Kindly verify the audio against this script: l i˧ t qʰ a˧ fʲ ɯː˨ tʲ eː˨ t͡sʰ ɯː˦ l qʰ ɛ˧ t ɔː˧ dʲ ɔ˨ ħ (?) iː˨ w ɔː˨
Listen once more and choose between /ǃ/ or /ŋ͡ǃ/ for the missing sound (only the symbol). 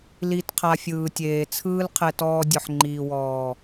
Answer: ŋ͡ǃ